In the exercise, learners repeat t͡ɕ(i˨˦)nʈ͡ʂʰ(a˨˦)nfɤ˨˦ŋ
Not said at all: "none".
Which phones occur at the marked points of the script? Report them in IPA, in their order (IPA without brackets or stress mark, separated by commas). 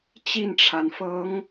i˥˨, a˩